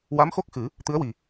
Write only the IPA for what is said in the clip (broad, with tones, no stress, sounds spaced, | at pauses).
w a˧˥ m x o˦˥ k̚ x ɨ˨˩˦ | t̪ ɨ˧˥ ə̯ w i˨˩